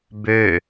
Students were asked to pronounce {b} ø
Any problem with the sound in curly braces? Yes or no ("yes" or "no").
no